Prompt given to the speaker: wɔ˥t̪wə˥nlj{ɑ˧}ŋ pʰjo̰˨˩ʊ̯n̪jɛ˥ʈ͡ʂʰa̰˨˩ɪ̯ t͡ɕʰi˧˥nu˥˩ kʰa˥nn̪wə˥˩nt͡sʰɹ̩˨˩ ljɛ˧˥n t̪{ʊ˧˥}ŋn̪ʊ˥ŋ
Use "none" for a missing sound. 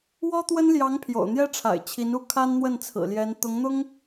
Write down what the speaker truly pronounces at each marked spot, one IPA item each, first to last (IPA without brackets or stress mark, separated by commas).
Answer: ɑ˧˥, ʊ˧˥